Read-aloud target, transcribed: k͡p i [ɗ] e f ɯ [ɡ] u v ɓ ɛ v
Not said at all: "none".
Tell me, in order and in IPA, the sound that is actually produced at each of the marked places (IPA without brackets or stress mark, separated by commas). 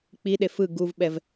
ɗ, ɡ